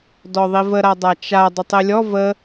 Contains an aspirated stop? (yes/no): no